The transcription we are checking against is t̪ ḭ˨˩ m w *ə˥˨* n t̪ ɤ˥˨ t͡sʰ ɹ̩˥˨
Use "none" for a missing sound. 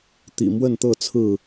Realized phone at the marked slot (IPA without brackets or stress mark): ə˥˨